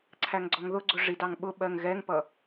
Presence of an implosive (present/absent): present